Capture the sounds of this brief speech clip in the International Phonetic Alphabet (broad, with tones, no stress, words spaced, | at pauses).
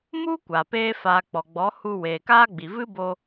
mu˦ kʷa˨ peː˧faː˨ k͡pɔ˨ɡ͡bɔ˨˦hu˧ weː˨kaː˦ɡ͡bi˨ vɨ˦bo˧